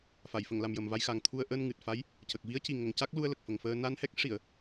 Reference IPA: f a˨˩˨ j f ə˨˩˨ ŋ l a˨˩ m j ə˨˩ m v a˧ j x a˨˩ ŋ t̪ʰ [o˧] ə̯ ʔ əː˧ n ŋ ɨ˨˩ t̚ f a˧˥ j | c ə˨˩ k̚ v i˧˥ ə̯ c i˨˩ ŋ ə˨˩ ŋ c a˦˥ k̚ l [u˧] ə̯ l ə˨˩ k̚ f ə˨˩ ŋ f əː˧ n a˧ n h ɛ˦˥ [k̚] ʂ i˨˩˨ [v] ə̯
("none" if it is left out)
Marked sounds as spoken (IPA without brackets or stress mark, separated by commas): u˧, u˧, k̚, none